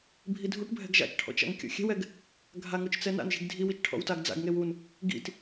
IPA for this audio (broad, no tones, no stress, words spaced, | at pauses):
bʱidʱuʈbʱɛ̤ɡ ʒa̰t͡ʃʈʰɔ̰t͡ʃ a̰ŋkʲɔ̰xʲɛ̤wɛɡ | ɡʱaŋot͡ʃ t͡sɛna̰nʒi̤ɡ dʱiwit͡ʃ ʈʰɔ̰wtaɡd͡za̰ɡŋew un | ɡḭt